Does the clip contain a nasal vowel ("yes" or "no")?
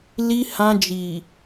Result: yes